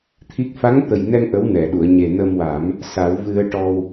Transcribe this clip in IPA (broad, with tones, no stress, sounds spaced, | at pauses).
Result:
t̪ʰ i˦˥ k̚ f a˧˥ ŋ t̪ ə˨˩ j n ɛ˧ ŋ ʔ ə˧˥ w n ɛ˨˩˨ ɗ u˨˩˨ ə̯ ɲ e˨˩ n ə˧ m w a˨˩˦ m | s a˨˩˦ w v ɨ˧ ə̯ ʈ ɔ˧ w